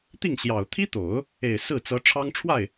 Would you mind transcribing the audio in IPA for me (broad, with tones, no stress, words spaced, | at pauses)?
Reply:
t̪i˥˩ŋɕjɑ˨˩ʊ̯ t̪ʰi˥t̪o˨˩˦ʊ̯ | e˨˩ɪ̯ sɹ̩˥˩t͡sɤ˧˥ ʈ͡ʂʰɑ˥ŋʈ͡ʂʰwa˥˩ɪ̯